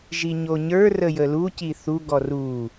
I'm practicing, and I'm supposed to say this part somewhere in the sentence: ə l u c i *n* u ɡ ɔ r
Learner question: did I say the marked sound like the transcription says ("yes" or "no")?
no